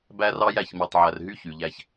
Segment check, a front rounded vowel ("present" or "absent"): present